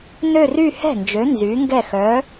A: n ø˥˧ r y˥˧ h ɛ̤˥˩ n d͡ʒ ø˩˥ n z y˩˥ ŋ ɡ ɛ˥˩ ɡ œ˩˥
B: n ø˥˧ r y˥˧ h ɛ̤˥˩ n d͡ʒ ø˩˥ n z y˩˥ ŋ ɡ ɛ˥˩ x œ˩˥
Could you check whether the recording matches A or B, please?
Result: B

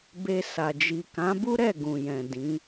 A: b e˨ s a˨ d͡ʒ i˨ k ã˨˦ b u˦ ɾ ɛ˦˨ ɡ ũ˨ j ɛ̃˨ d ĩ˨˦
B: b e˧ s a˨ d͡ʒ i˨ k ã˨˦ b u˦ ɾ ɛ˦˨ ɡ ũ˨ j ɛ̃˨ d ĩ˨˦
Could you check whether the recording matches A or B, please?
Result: B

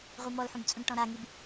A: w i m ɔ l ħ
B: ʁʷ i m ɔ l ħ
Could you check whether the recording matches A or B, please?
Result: B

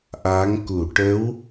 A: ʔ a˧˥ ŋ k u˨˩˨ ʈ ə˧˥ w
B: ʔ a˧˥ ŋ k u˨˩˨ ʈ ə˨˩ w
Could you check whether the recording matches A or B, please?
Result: A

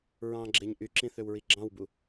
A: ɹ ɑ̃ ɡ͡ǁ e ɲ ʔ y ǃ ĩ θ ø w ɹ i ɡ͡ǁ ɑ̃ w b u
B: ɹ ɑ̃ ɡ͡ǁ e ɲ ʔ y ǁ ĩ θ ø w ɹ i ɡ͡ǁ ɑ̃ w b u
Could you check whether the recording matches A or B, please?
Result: B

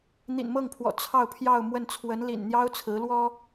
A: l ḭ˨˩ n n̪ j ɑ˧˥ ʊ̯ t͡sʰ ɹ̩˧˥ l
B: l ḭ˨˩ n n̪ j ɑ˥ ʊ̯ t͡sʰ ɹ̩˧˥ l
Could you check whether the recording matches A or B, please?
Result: B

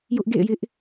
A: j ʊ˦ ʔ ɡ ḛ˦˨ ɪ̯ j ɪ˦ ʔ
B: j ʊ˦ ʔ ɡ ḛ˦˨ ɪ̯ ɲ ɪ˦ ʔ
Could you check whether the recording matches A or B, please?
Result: A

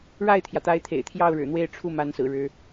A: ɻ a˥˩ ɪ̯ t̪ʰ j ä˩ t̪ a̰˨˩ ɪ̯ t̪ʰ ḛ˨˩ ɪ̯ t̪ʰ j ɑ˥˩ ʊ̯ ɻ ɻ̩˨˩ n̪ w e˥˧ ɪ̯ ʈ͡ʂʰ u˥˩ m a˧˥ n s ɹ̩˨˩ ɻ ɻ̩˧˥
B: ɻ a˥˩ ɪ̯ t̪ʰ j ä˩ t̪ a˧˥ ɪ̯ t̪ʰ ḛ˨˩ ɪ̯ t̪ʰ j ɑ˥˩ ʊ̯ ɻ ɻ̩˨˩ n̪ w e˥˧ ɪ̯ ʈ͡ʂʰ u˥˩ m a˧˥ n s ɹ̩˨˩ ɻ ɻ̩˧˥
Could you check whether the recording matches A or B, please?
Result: B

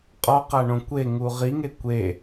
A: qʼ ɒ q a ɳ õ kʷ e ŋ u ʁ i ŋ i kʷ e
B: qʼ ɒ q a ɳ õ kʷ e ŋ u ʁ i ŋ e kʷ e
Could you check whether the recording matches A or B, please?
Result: B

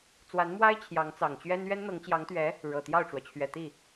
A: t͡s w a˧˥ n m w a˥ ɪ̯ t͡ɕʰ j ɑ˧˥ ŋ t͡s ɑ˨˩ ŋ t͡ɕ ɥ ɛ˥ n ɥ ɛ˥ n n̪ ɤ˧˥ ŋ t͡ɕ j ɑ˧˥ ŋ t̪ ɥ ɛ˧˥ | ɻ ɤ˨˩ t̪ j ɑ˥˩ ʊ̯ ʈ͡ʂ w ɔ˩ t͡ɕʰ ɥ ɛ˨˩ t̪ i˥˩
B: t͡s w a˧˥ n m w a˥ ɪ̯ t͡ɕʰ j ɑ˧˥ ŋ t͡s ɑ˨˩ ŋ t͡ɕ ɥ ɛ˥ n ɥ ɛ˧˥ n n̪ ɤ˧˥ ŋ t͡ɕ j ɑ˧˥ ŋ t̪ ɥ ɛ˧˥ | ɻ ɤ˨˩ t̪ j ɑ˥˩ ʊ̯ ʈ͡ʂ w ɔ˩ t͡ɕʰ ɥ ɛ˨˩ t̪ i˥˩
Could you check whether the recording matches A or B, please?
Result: A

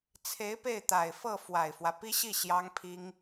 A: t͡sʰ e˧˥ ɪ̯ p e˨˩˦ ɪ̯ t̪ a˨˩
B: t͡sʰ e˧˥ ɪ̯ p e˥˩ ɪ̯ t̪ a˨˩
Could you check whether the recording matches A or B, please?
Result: B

